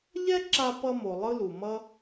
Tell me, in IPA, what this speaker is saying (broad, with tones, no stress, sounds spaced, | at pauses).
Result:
ʎ ɛ˥ ǁ a˧ p ʌ˧ m o˩ lˠ ɯ˥ l u˩ m ʌ˥